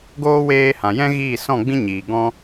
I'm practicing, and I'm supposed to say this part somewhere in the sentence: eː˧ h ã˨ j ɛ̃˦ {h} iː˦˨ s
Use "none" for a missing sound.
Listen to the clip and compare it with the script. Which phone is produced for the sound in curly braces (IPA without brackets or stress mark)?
ɣ